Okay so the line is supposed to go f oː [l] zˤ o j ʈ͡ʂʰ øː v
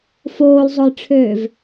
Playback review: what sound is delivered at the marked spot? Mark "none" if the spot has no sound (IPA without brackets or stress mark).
l